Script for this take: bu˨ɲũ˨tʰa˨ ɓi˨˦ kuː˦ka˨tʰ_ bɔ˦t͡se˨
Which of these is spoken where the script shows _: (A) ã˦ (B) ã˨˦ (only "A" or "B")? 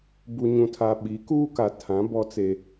B